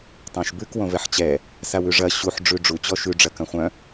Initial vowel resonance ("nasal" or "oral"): nasal